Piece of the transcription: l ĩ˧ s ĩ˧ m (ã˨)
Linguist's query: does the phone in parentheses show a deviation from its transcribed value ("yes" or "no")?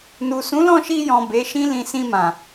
no